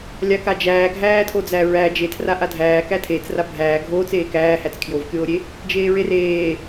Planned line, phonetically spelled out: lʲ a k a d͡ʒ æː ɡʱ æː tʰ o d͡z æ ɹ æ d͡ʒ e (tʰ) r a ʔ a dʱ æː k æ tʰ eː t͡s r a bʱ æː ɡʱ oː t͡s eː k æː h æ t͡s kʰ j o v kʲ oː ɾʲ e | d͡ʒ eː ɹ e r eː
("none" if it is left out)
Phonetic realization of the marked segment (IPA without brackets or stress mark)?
tʰ